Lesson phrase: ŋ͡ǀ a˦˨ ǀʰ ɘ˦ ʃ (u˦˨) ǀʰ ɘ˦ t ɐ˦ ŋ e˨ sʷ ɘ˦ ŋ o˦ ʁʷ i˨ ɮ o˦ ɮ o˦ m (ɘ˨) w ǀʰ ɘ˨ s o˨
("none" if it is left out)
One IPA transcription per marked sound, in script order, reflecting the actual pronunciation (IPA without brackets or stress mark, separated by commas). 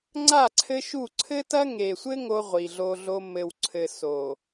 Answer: u˦˨, ɘ˨